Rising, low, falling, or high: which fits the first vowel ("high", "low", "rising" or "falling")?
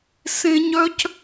high